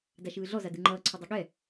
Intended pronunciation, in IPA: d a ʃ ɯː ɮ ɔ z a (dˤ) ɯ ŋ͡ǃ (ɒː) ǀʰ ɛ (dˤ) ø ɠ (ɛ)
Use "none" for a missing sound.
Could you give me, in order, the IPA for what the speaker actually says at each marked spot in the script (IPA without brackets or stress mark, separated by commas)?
d, ʌː, dˤ, ɛ